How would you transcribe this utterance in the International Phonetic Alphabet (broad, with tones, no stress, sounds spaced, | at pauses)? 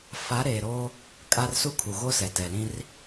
f a˨˦ ɾ eː˨ ɾ oː˦ | kʼ a˦ r s u˦ kʰ u˨ ɣ o˦ s ɛ˨ t ɛ˨ l ĩ˦ r